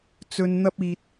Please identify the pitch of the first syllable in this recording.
low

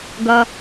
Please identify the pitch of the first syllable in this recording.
low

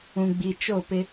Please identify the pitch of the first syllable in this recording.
low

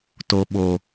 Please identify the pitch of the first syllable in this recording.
low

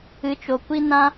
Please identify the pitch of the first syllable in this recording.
rising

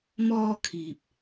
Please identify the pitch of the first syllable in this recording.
high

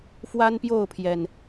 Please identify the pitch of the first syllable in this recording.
high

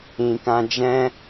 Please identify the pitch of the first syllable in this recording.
low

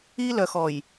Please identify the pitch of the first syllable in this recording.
high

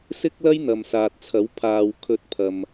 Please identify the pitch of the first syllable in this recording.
high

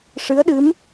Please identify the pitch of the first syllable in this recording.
rising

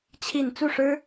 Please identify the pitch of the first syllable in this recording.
falling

